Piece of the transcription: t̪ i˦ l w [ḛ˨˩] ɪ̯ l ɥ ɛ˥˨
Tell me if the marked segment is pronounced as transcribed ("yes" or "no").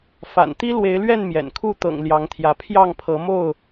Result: no